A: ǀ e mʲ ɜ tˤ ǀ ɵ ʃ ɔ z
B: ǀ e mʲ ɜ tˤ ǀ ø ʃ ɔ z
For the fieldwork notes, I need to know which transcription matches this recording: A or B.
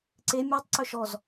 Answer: A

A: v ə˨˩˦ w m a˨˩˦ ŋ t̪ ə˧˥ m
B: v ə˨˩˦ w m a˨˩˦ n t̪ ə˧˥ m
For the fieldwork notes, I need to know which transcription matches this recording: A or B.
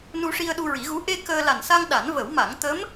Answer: A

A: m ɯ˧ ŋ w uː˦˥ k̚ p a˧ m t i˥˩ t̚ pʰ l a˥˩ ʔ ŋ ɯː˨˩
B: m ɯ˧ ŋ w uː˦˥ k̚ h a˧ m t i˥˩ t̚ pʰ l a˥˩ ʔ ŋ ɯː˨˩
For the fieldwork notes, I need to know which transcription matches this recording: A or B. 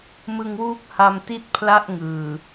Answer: B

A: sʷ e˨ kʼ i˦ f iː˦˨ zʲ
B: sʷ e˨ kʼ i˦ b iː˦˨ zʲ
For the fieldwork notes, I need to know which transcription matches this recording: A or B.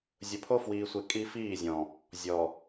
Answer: A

